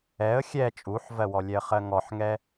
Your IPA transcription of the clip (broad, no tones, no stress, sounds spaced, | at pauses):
ɛ ə̯ xʲ ɛ t͡ʃʼ u ħ v ɜ w ɔ lʲ ɛ ə̯ χ ɜ ŋ ɔ ħ ŋ ɛ